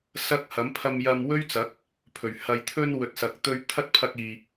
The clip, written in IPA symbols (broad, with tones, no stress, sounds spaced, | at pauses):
s ɐ˥ k̚ h ɐ˨˥ m pʰ ɐ˧ m j ɐ˧ m w ɵ˥ ɥ t͡s ɐ˨˥ k̚ | pʰ ɵ˨˩ ɥ h ɐ˨ j t̪ʰ ɵ˧ n w ɵ˨ t̚ s ɐ˨ k̚ t̪ ɵ˧ ɥ t̪ʰ ɐ˥ t̚ pʰ ɐ˧ k̚ iː˨